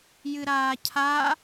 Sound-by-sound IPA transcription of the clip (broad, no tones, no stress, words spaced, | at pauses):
jɨɾaːcʰa